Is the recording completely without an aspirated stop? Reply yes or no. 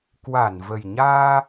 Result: yes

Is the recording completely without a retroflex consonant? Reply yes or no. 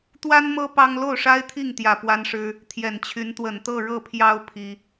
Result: no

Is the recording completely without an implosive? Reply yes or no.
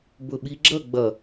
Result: no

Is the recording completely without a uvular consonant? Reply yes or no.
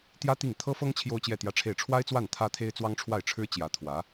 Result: yes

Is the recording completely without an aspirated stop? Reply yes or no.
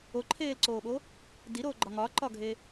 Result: no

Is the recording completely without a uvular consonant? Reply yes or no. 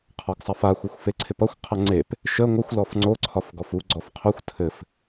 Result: no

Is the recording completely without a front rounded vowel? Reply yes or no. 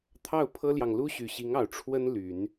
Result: no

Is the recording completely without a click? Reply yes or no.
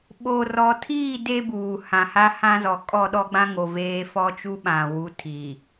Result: yes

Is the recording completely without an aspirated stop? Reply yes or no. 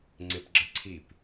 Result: no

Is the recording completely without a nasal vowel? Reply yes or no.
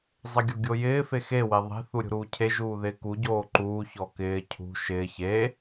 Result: yes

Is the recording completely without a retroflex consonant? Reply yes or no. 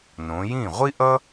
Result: yes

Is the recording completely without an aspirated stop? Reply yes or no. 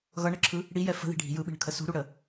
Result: no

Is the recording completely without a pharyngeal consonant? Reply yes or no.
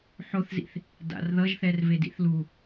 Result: no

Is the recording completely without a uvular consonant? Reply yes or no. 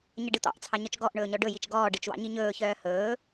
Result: yes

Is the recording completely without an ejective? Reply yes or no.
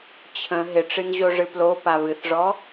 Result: yes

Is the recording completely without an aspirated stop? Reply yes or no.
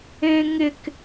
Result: yes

